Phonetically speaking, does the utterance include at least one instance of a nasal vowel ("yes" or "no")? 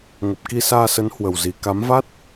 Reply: no